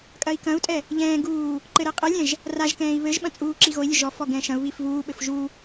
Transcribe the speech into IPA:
kʼ ɐ i̯ k ɐ̃ u̯ tʼ ɛ | ʎ ɛ̃ː ɡ uː | ǃ ɘ ɾ e qʼ ɘ lʲ ɛ̃ ʒ | r a ʒ k ɛ̃ː i̯ β ɘ ʒ ɓ ɐ̃ t͡sʼ uː ǁ i ɣ o i̯ lʲ ɘ ʒ ɔ f ɔ ɡ ɛ̃ ʃ ɐ̃ u̯ β i f v uː ɓ ɘ f ʒ u

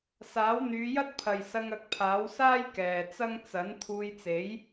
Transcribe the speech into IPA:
s aː˨˥ w n̪ yː˨˧ j ɐ˥ t̚ pʰ ɐ˨ j s ɐ˧ ŋ ɐ˨˥ k̚ pʰ aː˨˥ w s aː˥ j k ɛː˨ t͡s ɐ˥ ŋ t͡s ɐ˨˥ n t̪ʰ uː˧ j t͡s e˨˥ j

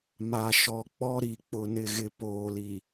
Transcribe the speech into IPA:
m a˨ ʃ ɔ˨ k͡p ɔ˦ ɾ i˨ k͡p ʊ˨ n ɪ˨ ɣ ɪ˨ p oː˨ l i˨

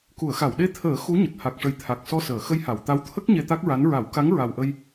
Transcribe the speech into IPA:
k u˨˩˨ ə̯ x a˨˩˨ w ɗ e˧˥ t̪ʰ əː˨˩˦ x u˧˥ ɲ ə˨˩ k̚ h a˨˩ k̚ ʂ ə˨˩ j t̪ʰ a˨˩ k̚ s ɔ˧ s əː˨˩˨ x ə˧ j h a˨˩˨ w t̪ a˧˥ w t̪ʰ ə˦˥ k̚ ɲ e˧ t̪ a˦˥ k̚ ɹ a˧˥ n ɹ a˨˩˦ w k a˧˥ ŋ ɹ a˨˩ w ʔ ə˧ j

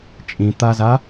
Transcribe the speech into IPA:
t͡ʃʼ ĩ t̪ a z a

